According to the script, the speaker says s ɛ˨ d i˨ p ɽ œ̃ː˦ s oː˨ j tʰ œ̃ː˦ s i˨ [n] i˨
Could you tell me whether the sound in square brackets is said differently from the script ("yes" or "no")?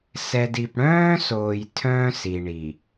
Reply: yes